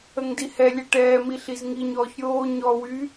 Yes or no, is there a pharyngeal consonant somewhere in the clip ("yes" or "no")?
no